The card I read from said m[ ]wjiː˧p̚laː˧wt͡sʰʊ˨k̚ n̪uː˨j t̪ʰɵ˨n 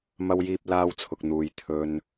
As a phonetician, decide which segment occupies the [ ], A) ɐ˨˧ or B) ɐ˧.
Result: B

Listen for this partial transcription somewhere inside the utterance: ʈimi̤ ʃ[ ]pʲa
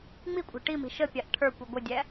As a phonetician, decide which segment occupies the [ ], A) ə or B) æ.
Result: A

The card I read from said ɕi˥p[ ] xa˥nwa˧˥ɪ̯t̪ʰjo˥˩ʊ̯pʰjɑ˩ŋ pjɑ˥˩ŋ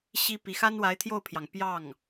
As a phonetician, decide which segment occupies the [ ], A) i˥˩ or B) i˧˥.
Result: B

